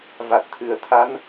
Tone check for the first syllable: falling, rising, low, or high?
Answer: low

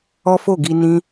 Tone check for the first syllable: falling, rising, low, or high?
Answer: high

